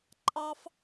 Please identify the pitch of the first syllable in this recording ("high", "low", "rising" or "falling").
high